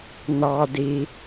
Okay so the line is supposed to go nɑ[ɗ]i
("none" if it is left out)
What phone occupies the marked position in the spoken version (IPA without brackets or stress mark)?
d